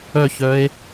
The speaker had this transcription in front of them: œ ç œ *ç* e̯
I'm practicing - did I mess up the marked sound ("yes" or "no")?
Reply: yes